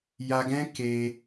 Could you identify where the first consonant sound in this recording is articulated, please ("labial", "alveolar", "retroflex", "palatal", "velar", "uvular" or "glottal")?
palatal